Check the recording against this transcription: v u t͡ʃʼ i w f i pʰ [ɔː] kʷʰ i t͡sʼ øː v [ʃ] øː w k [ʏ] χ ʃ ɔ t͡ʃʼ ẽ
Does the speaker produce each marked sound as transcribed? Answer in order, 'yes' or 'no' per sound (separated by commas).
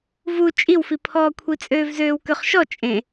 yes, no, yes